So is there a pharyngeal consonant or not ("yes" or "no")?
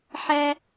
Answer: yes